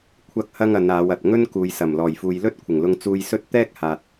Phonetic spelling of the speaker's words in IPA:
kʷʰɐ˥k̚hɐ˥ŋɐ˨˧naː˨˧w ɐ˨t̚ ŋɵ˥nkuː˨jsɐ˨˩m lɔː˨˩jfuː˨jlɵ˥t̚ kʷʰɪ˨˩ŋlʊ˧ŋ t͡suː˧jsɵ˥t̚ t̪ɛː˥k̚haː˨t̚

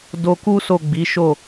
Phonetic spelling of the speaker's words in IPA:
do˧ku˦so˦˨ ɡ͡bi˨˦ʃo˦˨

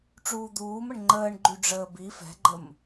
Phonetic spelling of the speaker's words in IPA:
ʈ͡ʂuːd̪uːməɳ ŋ͡ǃəːɳ ɡ͡ǃyɖ͡ʐəːbi fɛ̤ɡ͡ǃəm

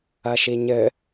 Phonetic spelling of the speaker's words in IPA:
ɐʃiɲɘ

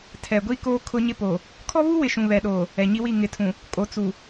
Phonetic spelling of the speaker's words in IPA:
tʰɛ˨ ɡʷi˦ koː˦ kʰʊ˦ɲɪ˦ po˨ | kʰɔ˦βu˦wɪ˨ ʃũ˨βɛ˨ɗoː˨ | ɛ˨ɲi˦wi˦˨ ŋɪ˨˦tʰũ˨ | kʼo˨t͡su˨

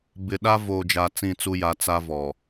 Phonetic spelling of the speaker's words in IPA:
bɪ˨ɗa˦ voː˨d͡ʒa˨ t͡sĩ˦˨t͡su˦ja˨˦ t͡sa˦vɔ˨

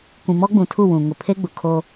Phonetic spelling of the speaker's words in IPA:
kʷĩ˨mɔ˦ɡ͡bũ˨tʰu˦˨ wũ˨ŋʊ˨pʰe˦ ɡ͡bʊ˨kʰoː˦

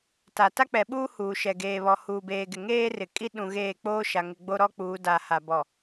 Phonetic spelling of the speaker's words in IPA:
ta˨ ta˦k͡pɛ˨ɓuː˦ huː˨ʃɛ˨ ɡeː˨βɔ˨ huː˨beː˨ɡɪ˨ ŋeː˦rɪ˨kʼi˦ ɗũ˨ ɣeː˦˨k͡poː˦ʃa˨ŋɪ˨ ɡ͡bo˦ɾɔ˦k͡puː˨˦ da˨ha˨bɔ˨

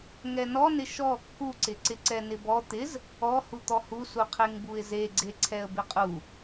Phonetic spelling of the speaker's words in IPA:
ŋɛnɔnɪ ʃɔ kːuǀɪǀɪǀɛ nɪbɔ t̪ɪz | ɔhu t̪ɔhusu qʰeŋbuɪ̯zeɡ͡ǀe ǀʰɛə̯bɪqʼu

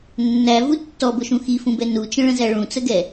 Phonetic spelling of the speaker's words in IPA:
nːævu tːɔbʊʃũ xifũbɛ nut͡ʃə̃ɭə̃zæ ɭũt͡səɡɛ

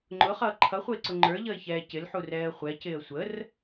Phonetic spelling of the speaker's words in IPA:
ŋ͡ǃʊχʌː ǃʰʌχʷəɪ̯ǀʊ ŋ͡ǃə˞ʎʌɪ̯çɛː cɪlħurɛːə̯ χʷɛcɪːə̯ sʷər

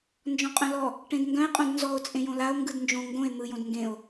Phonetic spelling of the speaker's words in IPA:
nd͡ʒɔ̃qʼœ̃lɔ | ʈẽdŋɡœ̃e̯ qʼõdnzɔo̯ t͡sʼẽjõlao̯ ŋɡɯdnd͡ʒõ ŋɡõe̯ n̪ɯjõd ŋɡẽo̯

